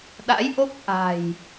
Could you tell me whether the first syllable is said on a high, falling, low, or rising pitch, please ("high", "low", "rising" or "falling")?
rising